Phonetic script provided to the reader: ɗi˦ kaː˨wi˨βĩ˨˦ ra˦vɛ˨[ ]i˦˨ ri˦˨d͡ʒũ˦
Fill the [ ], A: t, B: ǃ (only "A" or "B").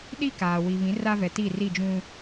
A